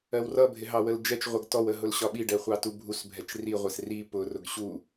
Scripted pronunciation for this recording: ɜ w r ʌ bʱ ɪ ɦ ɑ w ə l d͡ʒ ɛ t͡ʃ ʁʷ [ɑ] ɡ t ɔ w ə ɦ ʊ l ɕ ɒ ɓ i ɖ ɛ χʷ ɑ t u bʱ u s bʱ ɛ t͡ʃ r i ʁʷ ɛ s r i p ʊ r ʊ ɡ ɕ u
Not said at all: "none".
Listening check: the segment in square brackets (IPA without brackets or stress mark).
ʌ